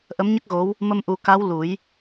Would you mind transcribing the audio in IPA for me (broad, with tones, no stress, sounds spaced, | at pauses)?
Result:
ʔ ə˧˥ m ɲ ə˦˥ k̚ ɣ o˧˥ w | m ə˧ m ʔ u˨˩˦ k a˧˥ w l u˨˩˦ j